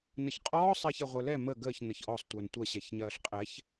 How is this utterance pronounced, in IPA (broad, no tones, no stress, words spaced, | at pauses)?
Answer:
nəçqʼɔːsˤ ɛːçɛʁʷə˞lɛ mə ɡəːç nəçʔɔsˤ tʷə˞ntʷɐ ɕɛçɲɐːɬqʼɛç